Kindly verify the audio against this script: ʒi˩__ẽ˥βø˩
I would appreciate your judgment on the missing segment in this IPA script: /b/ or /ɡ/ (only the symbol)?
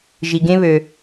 ɡ